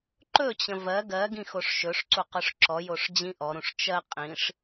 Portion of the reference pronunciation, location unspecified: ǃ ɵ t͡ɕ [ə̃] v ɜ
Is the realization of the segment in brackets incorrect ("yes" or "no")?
no